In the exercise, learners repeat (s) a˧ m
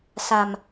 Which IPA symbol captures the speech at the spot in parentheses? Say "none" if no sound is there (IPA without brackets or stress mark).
s